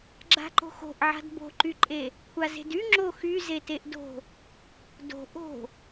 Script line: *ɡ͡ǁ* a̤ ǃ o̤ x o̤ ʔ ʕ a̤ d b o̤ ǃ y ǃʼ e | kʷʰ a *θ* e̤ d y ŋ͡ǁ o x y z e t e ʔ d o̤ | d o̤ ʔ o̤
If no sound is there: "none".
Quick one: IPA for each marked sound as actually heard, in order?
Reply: ɡ͡ǁ, z

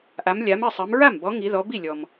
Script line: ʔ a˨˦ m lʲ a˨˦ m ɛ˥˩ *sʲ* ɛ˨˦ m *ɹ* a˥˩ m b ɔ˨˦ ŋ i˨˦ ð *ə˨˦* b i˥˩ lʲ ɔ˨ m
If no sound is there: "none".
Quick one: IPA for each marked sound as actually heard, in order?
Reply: sˤ, ɹ, ɔ˨˦

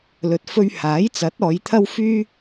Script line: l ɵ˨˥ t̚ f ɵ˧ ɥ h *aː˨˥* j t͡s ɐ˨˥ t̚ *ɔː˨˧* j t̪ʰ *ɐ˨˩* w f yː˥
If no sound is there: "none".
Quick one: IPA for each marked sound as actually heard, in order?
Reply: aː˨˥, ɔː˨˧, ɐ˥

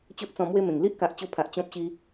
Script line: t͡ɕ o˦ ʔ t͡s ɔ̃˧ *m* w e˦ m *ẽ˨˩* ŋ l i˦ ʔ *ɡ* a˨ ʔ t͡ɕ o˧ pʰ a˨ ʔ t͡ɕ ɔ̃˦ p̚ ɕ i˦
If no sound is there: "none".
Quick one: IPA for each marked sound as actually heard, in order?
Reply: m, ẽ˨˩, k

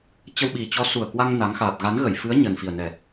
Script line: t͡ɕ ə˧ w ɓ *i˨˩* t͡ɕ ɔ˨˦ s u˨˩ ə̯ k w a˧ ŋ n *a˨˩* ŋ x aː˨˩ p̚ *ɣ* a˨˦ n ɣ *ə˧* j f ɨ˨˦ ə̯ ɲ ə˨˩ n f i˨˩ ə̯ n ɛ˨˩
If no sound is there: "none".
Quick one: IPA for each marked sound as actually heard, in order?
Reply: i˨˩, a˨˦, ɣ, ə˧˩

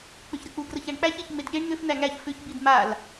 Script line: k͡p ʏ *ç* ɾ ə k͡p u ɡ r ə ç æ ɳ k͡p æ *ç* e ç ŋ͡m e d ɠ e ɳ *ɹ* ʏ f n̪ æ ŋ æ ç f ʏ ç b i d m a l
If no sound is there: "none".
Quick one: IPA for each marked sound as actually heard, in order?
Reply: ç, ç, n̪

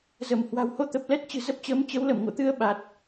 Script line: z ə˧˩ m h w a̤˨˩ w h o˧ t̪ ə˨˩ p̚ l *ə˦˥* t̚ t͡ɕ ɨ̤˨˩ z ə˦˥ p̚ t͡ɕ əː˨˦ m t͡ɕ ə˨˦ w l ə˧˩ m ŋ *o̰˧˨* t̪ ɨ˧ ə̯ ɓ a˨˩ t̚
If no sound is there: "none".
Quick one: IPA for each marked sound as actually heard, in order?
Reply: ɛ˦˥, o̰˧˨

